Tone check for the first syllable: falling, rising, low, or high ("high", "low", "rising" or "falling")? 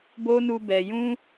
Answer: high